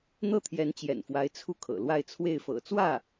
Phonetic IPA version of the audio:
n̪ ɤ˥˩ t̪ʰ j ɛ˧˥ n t͡ɕ j ɛ̰˨˩ n f w a˧˥ ɪ̯ t͡sʰ u˥˩ kʰ ɤ̰˨˩ l w a˥˧ ɪ̯ t͡sʰ w e˥˩ ɪ̯ f ɤ̰˨˩ t͡s w ä˥˩

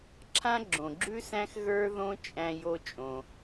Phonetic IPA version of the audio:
ǁʰ ã˥ ɡ͡ǁ õ˩ ɡ͡ǁ ʉ˥ s æ̃˥ x ɣ ə˞˥ ð õ˥ t͡ʃʼ æ̃˥ j o˥ t͡ʃʼ õ˩

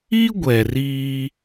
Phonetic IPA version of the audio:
i˦ ɡʷ ɛ˨ r iː˦

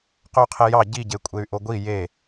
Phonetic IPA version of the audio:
q ø y̯ qʰ e j ɑ ɟ i ɟ e kʷʼ e y̯ ʔ o ɡʷ i j e

